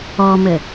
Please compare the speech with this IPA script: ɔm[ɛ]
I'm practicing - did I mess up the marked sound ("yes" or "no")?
yes